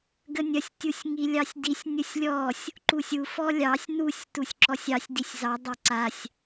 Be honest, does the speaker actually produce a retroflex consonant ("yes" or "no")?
no